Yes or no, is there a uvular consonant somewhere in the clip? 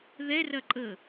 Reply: no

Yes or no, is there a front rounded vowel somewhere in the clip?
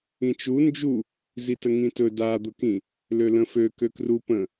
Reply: yes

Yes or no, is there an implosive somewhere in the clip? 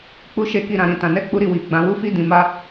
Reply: no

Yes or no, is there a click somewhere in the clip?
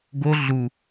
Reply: no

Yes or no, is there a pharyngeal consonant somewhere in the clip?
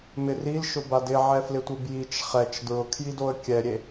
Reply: yes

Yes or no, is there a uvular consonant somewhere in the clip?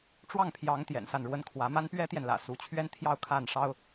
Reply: no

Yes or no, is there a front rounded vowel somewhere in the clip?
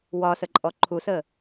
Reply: no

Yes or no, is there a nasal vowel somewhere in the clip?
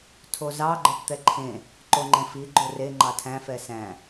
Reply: yes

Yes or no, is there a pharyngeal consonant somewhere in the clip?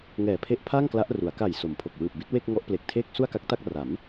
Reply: no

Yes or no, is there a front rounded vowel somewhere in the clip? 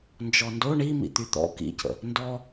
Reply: yes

